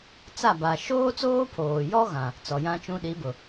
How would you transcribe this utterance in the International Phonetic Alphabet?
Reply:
t͡s a˦˨ b a˨ ʃ oː˦ t͡s oː˦ pʰ oː˨ j ɔ˦ ɣ ã˨ | t͡s ɔ˨ j ã˦ t͡ʃ ũ˦ ɗ i˨˦ b ʊ˨

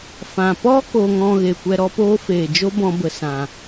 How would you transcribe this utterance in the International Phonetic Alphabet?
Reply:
f ã˨ p ɔ˦ k oː˧ ŋ ɔ̃˧ ɣ e˨ kʷ ɛ˧ ɾ ɔ˦ p oː˦ f eː˨ d͡ʒ o˦ b ɔ̃˧ b ə˨ s ã˨

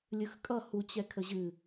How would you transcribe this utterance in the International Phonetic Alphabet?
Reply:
lʲ ɯ x kʼ ʌ h u t͡ɕ ɛ kʰ ə ʑ ɨ

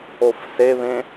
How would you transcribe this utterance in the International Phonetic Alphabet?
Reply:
o f s e β ẽ

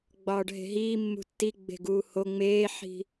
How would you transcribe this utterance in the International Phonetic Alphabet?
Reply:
ɡ͡b ɒː ɖ ɦ e̤ ɦ iː mː ṳ tː i ɡ͡b e̤ ɡ uː h o ŋ͡m eː ħ i̤

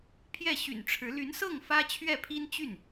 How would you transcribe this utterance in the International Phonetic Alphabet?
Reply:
pʰ j ɛ˥˩ ɕ y̰˨˩ n ʈ͡ʂʰ ɻ̩˧˥ l y˧˥ n s ɤ˥˩ ŋ f ä˥ t͡ɕʰ ɥ ɛ˥˩ pʰ i˥ n t͡ɕ y˥˩ n

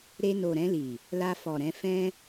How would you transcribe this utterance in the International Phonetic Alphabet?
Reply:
ɾ e˧ n o˨ ɾ ɛ̃˧ l i˨ | l a˧ f ɔ˨ ɾ ɛ̃˧ f ɛ̃˧

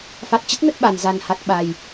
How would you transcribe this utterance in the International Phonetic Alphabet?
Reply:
f a˨˩ t̚ t͡ɕ ə˦˥ t̚ n ə˦˥ t̚ ɓ a˨˩ n z a˨˩ n h a˨˩ t̚ ɓ a˨˩ j

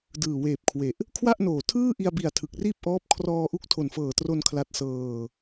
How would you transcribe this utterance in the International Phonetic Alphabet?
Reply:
d ɯː˨˩ w eː˨˩ p̚ kʰ w e˨˩ ʔ | kʰ w a˥˩ ʔ n oː˨˩ tʰ ɯː˥˩ ʔ i˧ a̯ b i˨˩ a̯ tʰ ɯ˨˩ k̚ r iː˥˩ p̚ ʔ ɔː˦˥ p̚ kʰ r ɔː˧ ʔ u˦˥ k̚ tʰ o˨˩ n f ɤː˨˩ t r o˧ n kʰ l a˦˥ t̚ s ɤː˧

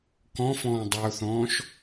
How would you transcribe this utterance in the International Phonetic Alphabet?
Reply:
k ɔ̃ f ɔ̃ː dˤ a ʊ̯ θ ɔ̃ː ʃ

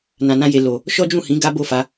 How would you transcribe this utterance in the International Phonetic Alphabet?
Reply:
n ã˨ n ã˧ j e˨ l o˨ | ʃ ɔ˦ d͡ʒ ũ˦˨ h ĩ˨˦ ɡ a˦ b o˦˨ f a˨˦

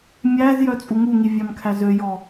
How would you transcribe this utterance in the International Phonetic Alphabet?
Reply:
mʲ æ z j œ t͡sʼ u ŋ u ŋ i vʲ ɑ m kʰ æ z ø j ɔ

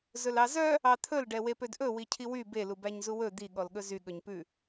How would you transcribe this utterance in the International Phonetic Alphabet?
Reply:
z ɵ l ɑ z œ | ɑ t̪ʰ ɵ l ɖ ɛ w e p ø d ʔ ɵ w i cʰ i w y b e l u b æ ɲ z u w ɵ d̪ i ɠ ɔ l ɠ ɵ z y ɠ ɵ ɲ p ʉ

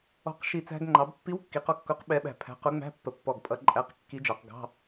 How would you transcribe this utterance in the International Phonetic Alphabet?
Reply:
ɔ̤˧˩ q ʃ i˧˩ t͡s æ̤˧ ɡ ŋ͡ǃ ɑ˩˧ b pː i˧˥ w kː i˩˧ q ɔ˧ kː ʊ˧˥ q ɓ ɛ˧˥ ɓ æ̤˧˩ pʰ æ̤˧˥ q ʊ˧˥ ŋ͡m æ̤˧˥˧ pː ə˧˩ pː ɔ˧˩ ɡ pʼ ʌ˧˥ ǃʼ æ˧˥˧ q kː i˧˥ d͡ʒ ɑ˩˧ q ɡ ɑ̤˧˥˧

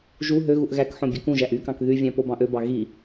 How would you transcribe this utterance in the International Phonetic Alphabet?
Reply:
ʒ u ɦ ø ɣ u ʔ ɣ æ k ħ õ bʲ ø k ũ ʒ æ ʔ y k ɑ̃ k ð y vʲ æ̃ p o b ɑ̃ ʔ ø b ɑ ɣ i

